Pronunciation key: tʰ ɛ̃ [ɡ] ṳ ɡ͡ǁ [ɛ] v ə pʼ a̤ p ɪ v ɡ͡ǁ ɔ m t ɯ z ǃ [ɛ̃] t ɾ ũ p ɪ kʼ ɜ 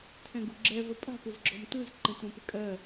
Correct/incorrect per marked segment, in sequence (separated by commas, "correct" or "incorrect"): correct, correct, correct